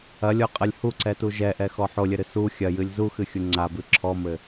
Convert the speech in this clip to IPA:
ɐ lʲ ɔ qʼ ɐ lʲ h u ǀ ɛ t u ʒ ɛ ʔ ɛ x ɔ ħ o lʲ ɘ ɾ ɨ s u xʲ ɐ j ɨ lʲ z u x ɨ xʲ u ŋ͡ǀ a b ɨ ǁʰ ɔ m ɘ

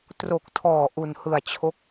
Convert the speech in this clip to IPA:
t r o˨˩ k̚ tʰ ɔː˨˩ ʔ u˨˩ n h ɯ˨˩ a̯ t͡ɕʰ o˦˥ k̚

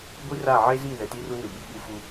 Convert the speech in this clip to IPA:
ɡʷ i˦ r a˦˨ ʕ e˦ z i˦˨ ð ɛ˨ t i˦ r u˦ n ɯ˨ ɓ i˦ ɓ u˦ f u˦

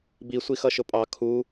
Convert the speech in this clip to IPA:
b i sʷ i x ʌ ʃ ʊ pʼ ɑ kʰ u

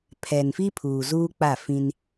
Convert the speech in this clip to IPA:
pʰ ɛ˨ n f i˦ pʰ uː˨ z uː˦ k͡p a˦˨ f ĩ˦ n

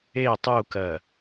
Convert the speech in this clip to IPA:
e tˤ u k ɜ

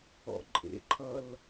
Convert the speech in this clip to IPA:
ɔ̰ ǃʼ ḛ ǃʰ ʌ l

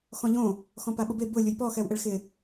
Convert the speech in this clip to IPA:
x ɔ̃ ʎ õ | x ɔ̃ p a ɓ ʊ b e b ʊ lʲ ʊ j p ɔ x ɛ w ʔ e ɭ x ɪ

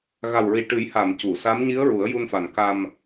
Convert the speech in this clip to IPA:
ɣ a˨˩ w ɹ i˨˩ ʈ ɨ˨˩˦ j h a˨˩˨ m c u˨˩˨ s a˧˥ m ɲ i˧˥ ə̯ ɹ u˨˩˦ ə̯ j u˧ n f a˨˩ n k a˧ m

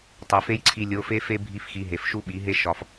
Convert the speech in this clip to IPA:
tˤ e˨ f e˦ j ǀʰ i˧ lʲ o˨˦ f e˦ f e˦ bʱ i˦ f x i˧ ɦ e˨ f ʃ u˦ ɓ i˨˦ ɦ e˦ ʃ ɒ˧ f

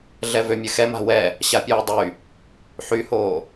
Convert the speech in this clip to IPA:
ɮ ɛ v ø mʲ ɘ x ɛ m a̤ w ɛ | ɕ a pʲ uː dˤ y | ħ y h oː

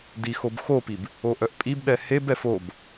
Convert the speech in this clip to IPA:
d i x o b x o p i b | o ʔ œ ʔ pʼ i b ɗ ɛ h e b ɛ f o b

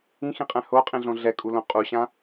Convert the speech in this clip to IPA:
ĩ x ĩ qʼ ɛ̃ h o qʼ ĩ ɮ õ ɮ ɛ kʼ u l õ qʼ u ɕ ã

